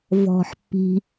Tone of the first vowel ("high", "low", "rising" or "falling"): low